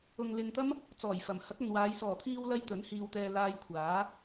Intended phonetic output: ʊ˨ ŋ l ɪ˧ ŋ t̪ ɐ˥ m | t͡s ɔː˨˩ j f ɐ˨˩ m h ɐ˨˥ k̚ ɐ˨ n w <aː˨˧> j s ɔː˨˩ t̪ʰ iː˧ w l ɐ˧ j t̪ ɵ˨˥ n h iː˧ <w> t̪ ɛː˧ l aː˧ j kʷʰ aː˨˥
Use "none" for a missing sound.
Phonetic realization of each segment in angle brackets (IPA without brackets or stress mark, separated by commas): aː˨˧, w